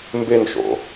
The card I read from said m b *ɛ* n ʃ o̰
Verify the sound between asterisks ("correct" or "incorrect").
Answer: incorrect